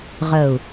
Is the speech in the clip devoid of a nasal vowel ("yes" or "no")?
yes